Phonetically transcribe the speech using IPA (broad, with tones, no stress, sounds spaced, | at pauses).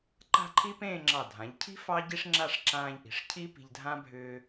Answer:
ǃ a̤˥˧ ǃʰ i˥ p ẽː˥˧ ŋ͡ǁ ɑ˧˩ dʱ ã˩˧ ʎ cʰ i̤˥ f ɑ˥ ɟ i˥ ʂ ŋ͡ǁ a˥˧ ʂ ǁ ãː˧ ʎ ʔ i̤˩˧ ʂ cʰ i˥ p i̤˧ ʎ dʱ ã˥ bʱ ʏː˧